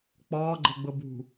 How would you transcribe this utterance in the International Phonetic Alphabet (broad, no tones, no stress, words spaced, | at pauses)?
k͡pɒːɡ͡ǃɤɡ͡bɤ bṳ